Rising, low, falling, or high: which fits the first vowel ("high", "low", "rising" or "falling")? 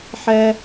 high